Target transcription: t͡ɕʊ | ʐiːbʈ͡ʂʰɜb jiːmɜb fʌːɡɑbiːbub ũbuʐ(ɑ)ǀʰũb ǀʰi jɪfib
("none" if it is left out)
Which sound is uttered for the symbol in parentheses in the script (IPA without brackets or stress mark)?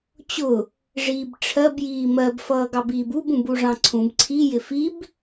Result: ɑ̃